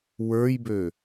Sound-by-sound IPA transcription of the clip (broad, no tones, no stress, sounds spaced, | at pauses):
w ə˞ j b ø